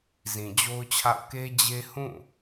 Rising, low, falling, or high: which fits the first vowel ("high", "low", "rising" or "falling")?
low